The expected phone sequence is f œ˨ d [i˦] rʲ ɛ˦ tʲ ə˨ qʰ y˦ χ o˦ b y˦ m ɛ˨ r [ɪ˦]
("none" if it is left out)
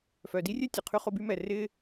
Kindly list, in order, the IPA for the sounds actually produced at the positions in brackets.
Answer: i˦, ɪ˦

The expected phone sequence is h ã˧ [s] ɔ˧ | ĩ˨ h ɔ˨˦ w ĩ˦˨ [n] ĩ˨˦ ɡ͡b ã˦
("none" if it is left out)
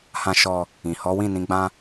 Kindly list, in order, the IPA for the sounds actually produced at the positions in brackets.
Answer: ʃ, n

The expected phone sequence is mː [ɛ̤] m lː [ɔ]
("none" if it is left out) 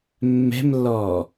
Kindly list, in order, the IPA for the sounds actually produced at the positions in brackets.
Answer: ɛ̤, ɔː

